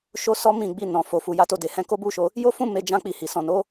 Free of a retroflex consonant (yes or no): yes